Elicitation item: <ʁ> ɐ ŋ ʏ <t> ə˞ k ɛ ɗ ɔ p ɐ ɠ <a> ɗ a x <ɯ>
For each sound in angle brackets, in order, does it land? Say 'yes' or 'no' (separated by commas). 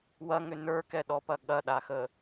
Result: no, no, no, no